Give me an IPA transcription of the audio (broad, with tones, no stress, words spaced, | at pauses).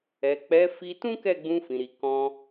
ɛ˨k͡pɛ˨˦ fi˧tũ˦kɛ˦˨ ɡ͡bũ˧fĩ˨ɾi˨ kɔ̃˧